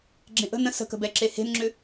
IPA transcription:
ɡ͡ǁ ẽ ʔ ə̤ n ə̃ s ə̤ k ə̤ b ɛ ǁ e h e̤ n ŋ͡ǁ ʏ

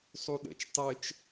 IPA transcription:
sˤ u ɗ ə̰ t͡ʃ tˤ ɘ t͡ʃ

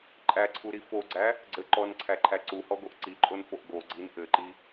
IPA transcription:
ǃʼ æ ǀʰ u ɾ i f o ɡ͡ǀ æ | ɡ͡ǀ ɘ ǃ ɔ n ǀʰ æ ǃʰ æ ǀ u h ɔ ɡ o ʔ ǀ i ǃʼ o n f o ʔ ɡ o ɡ͡ǀ i n ʔ ɘ ǃ i

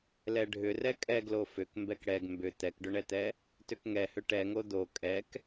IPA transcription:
l ɛ ɖʱ ʏ r ɛ kʼ ɛ ɡ l o f ʏ k m b ɛ k ɽ ɛ ɡ m b ʏ t̪ ɛ k ɖ ʏ ɳ ɛ t̪ ɛ | t ʏ k ŋ ɛ h ʏ ʈ ɛ ŋ o d̪ o kʼ ɛ k

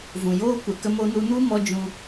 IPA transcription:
v ũ˨ j oː˦ kʷ ɛ˨ k ə˧ m o˧ n u˧ n u˦ m ɔ˦ d͡ʒ ũ˧

